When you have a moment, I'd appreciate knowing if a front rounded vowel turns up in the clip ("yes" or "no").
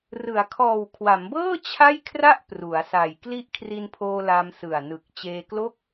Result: no